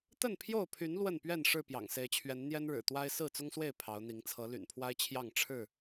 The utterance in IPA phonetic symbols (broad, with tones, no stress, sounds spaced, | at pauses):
t̪ ə˥˨ n pʰ j o˥˨ ʊ̯ pʰ y˨˦ n l w ə˥˨ n p ɥ ɛ˥˨ n ʂ ɻ̩˥˨ p j ɑ̰˨˩ ŋ s e˨˦ ɪ̯ t͡ɕʰ ɥ ɛ˨˦ n n̪ j ɛ˦ n ɻ ɻ̩˨˩ t̪ w a˦ ɪ̯ s ɹ̩˥˨ t͡s ʊ˦ ŋ s w e˥˨ ɪ̯ pʰ ɑ˨˦ ʊ̯ n̪ i˨˦ ŋ t͡sʰ ɤ˨˦ l y̰˨˩ n pʰ w a˦ ɪ̯ t͡ɕʰ j ɑ˥˨ ŋ ʈ͡ʂʰ ɻ̩˥˨